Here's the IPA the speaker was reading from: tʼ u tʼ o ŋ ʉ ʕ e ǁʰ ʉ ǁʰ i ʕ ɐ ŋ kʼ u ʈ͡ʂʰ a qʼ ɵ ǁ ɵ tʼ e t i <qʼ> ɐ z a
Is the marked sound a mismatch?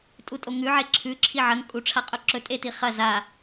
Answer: yes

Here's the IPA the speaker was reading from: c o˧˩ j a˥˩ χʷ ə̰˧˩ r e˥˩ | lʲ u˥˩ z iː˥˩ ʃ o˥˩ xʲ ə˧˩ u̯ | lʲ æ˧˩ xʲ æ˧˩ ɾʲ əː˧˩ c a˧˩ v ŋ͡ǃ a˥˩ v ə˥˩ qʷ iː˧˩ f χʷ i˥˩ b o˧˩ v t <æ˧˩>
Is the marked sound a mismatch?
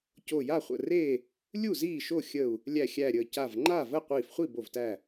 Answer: no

